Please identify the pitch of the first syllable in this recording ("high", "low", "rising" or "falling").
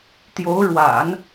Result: rising